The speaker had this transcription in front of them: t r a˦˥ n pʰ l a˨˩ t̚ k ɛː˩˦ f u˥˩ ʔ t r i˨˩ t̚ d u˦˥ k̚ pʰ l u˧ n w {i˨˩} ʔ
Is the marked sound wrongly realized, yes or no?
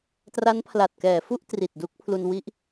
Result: yes